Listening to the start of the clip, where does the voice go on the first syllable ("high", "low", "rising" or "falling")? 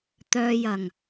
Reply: low